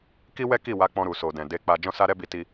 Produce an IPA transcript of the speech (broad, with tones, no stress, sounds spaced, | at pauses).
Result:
k i˦ w ɛ˦ k i˦˨ w a˧ k͡p ɔ̃˧ ɾ u˨ s o˨ d ɛ̃˨ d e˧ k͡p a˧ d͡ʒ ɔ̃˦ s a˦ ɾ ɛ˦ b i˧ t i˧